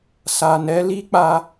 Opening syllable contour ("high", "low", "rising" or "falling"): low